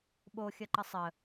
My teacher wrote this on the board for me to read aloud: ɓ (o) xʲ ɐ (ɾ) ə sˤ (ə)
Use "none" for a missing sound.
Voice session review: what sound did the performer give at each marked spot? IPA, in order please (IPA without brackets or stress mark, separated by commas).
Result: o, ǃ, ə